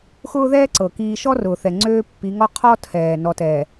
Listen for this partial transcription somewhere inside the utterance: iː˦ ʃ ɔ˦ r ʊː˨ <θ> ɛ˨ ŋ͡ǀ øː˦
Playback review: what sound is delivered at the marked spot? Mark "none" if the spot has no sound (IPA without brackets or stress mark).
θ